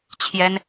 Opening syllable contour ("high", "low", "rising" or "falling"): high